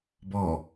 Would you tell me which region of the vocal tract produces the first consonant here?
lips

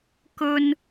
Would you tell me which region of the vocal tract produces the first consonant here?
velum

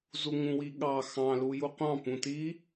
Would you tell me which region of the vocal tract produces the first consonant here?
tongue tip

